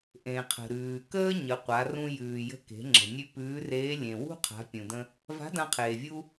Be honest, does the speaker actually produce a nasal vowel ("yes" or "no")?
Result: yes